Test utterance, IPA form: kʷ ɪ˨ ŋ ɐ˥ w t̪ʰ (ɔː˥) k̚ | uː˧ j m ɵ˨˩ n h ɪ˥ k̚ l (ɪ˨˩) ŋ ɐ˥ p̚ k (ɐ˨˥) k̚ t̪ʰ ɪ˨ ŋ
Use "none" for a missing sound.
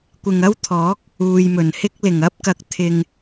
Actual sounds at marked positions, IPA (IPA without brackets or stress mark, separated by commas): ɔː˨˥, ɪ˨˩, ɐ˨